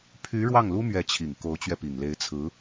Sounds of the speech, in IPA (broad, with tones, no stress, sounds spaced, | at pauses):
pʰ y˧˥ ɻ w ɑ˥˩ ŋ l u˥ m ɥ ɛ˧˥ t͡ɕʰ i˨˩ ŋ k o˧˥ ʊ̯ t͡ɕ ɥ ɛ˧ p i˨˩ ŋ l e˧˥ ɪ̯ t͡sʰ ɹ̩˧˥